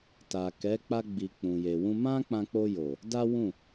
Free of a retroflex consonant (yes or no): yes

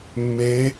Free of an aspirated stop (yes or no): yes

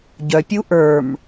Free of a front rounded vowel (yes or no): no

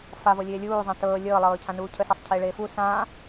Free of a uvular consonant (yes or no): yes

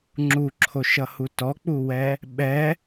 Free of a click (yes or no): no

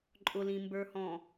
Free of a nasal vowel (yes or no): no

